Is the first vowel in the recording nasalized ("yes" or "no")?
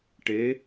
no